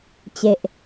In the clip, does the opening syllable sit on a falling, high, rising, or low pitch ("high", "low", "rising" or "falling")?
low